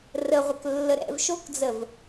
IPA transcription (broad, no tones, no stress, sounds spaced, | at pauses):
r ə ʁʷ ə k lː ə ɾ ɛ̰ v ʃ o k d͡z ə v